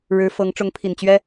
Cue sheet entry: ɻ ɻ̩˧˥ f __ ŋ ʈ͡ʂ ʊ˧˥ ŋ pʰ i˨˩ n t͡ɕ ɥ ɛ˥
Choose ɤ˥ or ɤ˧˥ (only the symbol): ɤ˧˥